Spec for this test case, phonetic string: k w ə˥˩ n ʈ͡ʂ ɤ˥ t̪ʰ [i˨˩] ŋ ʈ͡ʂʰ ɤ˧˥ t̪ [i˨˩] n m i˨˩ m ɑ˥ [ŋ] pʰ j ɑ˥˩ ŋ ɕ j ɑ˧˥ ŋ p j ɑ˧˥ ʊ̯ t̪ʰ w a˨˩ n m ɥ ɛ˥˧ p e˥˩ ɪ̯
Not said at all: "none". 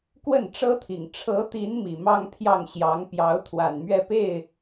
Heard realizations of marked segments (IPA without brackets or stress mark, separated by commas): i˨˩, i˧˥, ŋ